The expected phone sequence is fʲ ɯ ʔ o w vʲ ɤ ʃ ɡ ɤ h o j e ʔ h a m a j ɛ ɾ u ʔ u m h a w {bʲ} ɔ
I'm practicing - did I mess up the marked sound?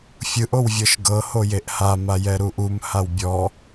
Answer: no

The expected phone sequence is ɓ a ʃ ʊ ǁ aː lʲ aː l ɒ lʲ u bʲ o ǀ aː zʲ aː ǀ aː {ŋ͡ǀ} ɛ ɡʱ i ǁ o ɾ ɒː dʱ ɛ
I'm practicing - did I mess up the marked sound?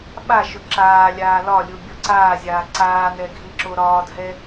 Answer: yes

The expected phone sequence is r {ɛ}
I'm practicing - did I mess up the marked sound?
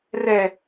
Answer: no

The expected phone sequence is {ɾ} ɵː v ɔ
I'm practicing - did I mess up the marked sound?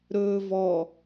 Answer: no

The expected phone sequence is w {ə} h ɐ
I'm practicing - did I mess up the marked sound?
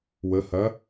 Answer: no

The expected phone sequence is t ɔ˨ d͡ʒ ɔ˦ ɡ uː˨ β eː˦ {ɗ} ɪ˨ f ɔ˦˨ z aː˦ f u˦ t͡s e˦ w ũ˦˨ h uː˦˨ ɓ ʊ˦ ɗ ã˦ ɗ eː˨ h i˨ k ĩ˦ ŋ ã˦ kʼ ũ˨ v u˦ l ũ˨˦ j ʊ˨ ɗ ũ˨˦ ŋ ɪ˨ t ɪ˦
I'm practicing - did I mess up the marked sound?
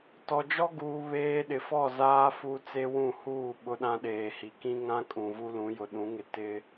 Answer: no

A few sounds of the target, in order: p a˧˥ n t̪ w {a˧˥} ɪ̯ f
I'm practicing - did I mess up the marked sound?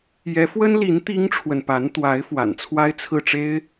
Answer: no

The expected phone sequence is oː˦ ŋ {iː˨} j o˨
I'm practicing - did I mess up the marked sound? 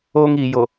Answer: no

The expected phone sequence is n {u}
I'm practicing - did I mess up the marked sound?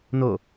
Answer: yes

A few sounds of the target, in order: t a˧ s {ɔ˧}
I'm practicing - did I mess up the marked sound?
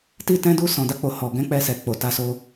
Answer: yes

